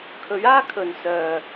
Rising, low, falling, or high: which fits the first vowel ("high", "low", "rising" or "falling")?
rising